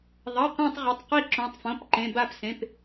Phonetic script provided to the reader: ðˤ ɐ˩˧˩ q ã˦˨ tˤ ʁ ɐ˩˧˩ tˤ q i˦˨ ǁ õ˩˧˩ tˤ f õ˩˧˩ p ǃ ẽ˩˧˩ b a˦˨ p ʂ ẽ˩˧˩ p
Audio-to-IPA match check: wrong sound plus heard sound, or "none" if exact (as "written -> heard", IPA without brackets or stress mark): ʂ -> s